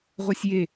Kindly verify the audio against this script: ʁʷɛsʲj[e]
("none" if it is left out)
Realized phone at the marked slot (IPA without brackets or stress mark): e